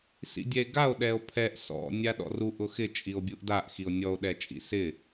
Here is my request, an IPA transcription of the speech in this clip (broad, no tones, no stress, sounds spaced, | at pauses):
s ḭ dʲ ɛ e̯ ɡ a o̯ ɗ ɛ o̯ pʰ ɛ ʔ s ɔ̰ nʲ a ɗ ɔ̰ r u ʔ ʊ x ɪ t͡ʃʼ i o̯ bʲ u ʔ d a ʔ x i o̯ nʲ ɔ o̯ ɗ ɛ t͡ʃʼ ḭ s ɪ